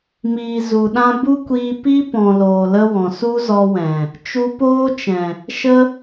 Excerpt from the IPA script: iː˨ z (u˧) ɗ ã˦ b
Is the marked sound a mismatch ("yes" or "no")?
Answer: yes